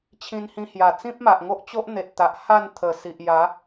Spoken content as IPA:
t͡ɕʰ ĩ˧ n h ĩ˧ h j a˨˩ t͡s ĩ˦ p̚ m a˨ ʔ ŋ o˦ ʔ t͡ɕ o˦ ʔ n̪ e˨ t̚ t̪ a˨ ʔ h a˥˧ n t̪ʰ ə˨˩ s i˨ ʔ j a˨˦

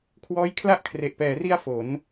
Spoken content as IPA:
kʰ w ɔː˦˥ j kʰ l a˥˩ ʔ kʰ r e˨˩ ʔ p ɛː˩˦ r i˧ a̯ f o˩˦ n

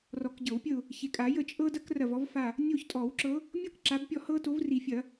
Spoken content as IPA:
r ɔ˨˩˦ k ɟ ɤ˨˩˦ w pʲ ə˦˨ ʊ̯ | ç e˨ kʼ a˨˩˦ j ə˦˨ t͡ʃʼ ɤ˥ d ɐ˥ k r ɐ˦˨ v ɔ˥ v f a˦˨ | nʲ o˦˨ ç tʼ ɔ˨˩˦ w ǁ ɤ˨˦ | mʲ ɤ˥ k ǁ a˨˦ b pʲ ɔ˦˨ h ɤ˥ t o˨˦ v r i˨˩˦ fʲ ɐ˨˩˦

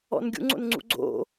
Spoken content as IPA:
ɔ̰ n ɡʲ ṵ ŋ͡ǀ o̰ n ŋ͡ǀ ṵ ɡ͡ǀ o̰

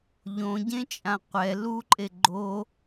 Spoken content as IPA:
ʎ õ ɟ ẽ t͡ʃʼ ã qʷ ɛ l u ǃʼ e ɡ͡ǃ o

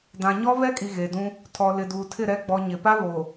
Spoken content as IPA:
d ã˨ ɲ ɔ˦ β ɛ˦ kʼ i˨ ɣ e˨ d ũ˦ | tʰ ɔ˨ l ɪ˨ d uː˨ tʰ ɪ˦˨ ɾ ɛ˨ ɡ͡b ɔ˨ ɲ ɪ˨ p a˦ β o˨

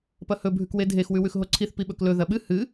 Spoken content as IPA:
p ɐ h ɵ bʱ ʉ k w e dʱ e x w ʉ w ʉ x ɦ o ǀʰ i θ p i ɓ ɵ k l ɵ ð ɐ ɓ ɨ h ɨ

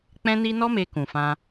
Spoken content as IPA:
k͡p ɛ̃˦ n i˦ n ɔ˦ m e˧ k ũ˨ f ã˧

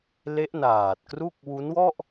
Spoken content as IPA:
l e˦˥ ʔ n aː˨˩ t̚ k r u˥˩ k̚ w u˦˥ n w ɔ˥˩ ʔ

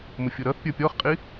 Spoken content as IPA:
m ʊ fʲ ʊ ɾ ʌ θ pʲ ə˞ pʲ ɔ χ qʼ i

